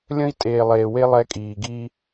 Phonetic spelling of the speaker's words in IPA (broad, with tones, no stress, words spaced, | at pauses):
lʲə̃˦i̯tʼeː˨lˠeː˨we˦ lˠɛ˦kʼiː˨ɡiː˦